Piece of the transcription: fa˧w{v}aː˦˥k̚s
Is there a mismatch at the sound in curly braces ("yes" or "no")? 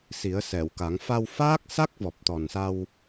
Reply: yes